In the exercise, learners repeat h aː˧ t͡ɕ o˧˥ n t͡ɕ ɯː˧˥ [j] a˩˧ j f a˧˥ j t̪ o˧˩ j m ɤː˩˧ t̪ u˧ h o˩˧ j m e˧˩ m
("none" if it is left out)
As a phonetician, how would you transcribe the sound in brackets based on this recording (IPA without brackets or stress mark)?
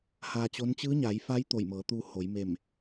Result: ɲ